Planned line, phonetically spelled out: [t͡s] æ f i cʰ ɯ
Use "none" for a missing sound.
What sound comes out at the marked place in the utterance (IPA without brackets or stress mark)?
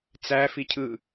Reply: t͡s